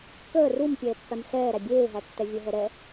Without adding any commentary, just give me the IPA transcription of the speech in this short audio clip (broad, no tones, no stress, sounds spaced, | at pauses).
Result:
k əː r u m pʲ ɛː pː æ m ɬ ɛː ɾ æ bʲ eː ɦ æ tː ɛ vʲ ə ɦ ɛ ɾ ɛ